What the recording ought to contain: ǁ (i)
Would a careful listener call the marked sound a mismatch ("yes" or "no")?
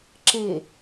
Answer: yes